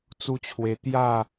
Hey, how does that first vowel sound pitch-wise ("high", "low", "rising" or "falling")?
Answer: high